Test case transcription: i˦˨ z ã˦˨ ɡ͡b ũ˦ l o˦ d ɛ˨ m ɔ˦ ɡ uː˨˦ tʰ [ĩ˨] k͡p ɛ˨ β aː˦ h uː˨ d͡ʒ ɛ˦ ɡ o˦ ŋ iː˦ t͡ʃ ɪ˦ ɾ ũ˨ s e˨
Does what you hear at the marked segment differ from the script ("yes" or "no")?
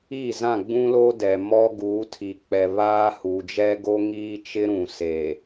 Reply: yes